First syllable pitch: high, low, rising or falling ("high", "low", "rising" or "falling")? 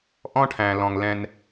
high